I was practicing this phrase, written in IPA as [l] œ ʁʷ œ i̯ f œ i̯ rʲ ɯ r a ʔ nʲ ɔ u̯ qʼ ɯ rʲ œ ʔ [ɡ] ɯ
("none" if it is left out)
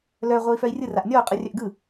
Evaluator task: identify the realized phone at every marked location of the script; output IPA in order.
l, ɡ

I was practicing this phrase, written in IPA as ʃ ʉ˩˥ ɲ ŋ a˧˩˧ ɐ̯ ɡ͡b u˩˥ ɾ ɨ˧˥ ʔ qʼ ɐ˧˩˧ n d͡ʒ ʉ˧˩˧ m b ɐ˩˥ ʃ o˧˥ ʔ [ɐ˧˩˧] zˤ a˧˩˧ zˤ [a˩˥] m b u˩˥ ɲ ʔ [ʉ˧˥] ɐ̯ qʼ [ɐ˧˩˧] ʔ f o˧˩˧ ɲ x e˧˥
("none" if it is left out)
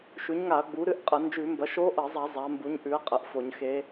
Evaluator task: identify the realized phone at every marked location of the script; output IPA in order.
ɐ˧˩˧, a˩˥, ʉ˩˥, ɐ˩˥

